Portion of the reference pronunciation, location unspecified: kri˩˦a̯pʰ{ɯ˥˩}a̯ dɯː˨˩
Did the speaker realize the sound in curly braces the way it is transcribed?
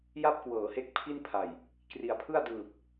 yes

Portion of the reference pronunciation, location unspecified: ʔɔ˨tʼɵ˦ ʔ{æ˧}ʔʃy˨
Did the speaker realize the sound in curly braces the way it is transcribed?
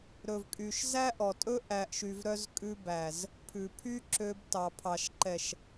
no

